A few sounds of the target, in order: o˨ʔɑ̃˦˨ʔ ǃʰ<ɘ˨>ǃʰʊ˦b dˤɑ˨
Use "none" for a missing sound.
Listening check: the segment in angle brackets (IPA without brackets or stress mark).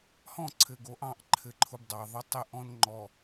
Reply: ɘ˦